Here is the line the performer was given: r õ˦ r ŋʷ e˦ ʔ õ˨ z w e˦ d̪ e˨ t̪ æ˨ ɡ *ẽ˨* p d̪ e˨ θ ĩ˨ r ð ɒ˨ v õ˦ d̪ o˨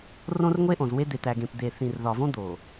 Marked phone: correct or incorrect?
correct